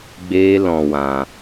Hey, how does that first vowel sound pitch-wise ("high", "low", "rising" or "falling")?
high